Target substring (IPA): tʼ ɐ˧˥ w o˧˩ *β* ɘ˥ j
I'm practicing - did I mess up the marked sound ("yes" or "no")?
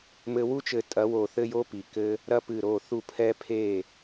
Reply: yes